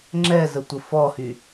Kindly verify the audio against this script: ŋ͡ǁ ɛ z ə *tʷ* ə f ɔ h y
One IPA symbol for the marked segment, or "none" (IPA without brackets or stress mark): tʷ